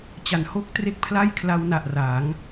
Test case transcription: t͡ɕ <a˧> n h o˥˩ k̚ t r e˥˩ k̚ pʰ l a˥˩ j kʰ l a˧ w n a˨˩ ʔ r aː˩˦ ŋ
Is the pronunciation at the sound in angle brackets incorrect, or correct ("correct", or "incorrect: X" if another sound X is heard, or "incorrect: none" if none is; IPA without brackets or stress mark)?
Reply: incorrect: a˩˦